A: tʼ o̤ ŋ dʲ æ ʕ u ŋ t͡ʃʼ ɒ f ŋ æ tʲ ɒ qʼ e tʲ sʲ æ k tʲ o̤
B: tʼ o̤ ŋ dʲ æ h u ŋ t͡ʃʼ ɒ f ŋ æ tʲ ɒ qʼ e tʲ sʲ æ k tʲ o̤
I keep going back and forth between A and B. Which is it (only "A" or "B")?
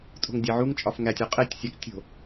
A